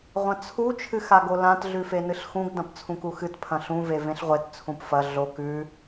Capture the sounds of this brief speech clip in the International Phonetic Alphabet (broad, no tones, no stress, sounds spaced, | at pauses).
ʁʷ ɐ̃ t͡sʰ u t͡ʃʰ ɨ x a ɡ o l ã t ɮ ʉ f e n ɨ ɬ x ũ ɡ d ɐ̃ p t͡sʰ ũ k u x ɨ t pʰ ɐ̃ ɬ ũ v e v ẽ ɬ ʁʷ e t t͡sʰ ũ p f ɐ ɮ o k ʉ